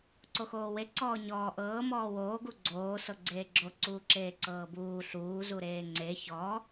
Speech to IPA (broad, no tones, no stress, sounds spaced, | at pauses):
ǀ o x oː w e ǀ ɔː ɲ ɔː ʔ ɤː m ɔː w oː ɡ u ɡ͡ǀ oː s ɤ ɡ͡ǀ eː ɡ͡ǁ o ǀ uː ǁ eː ǀ ɤː b uː ɬ uː z u ɾ eː ŋ͡ǀ e ç ɔ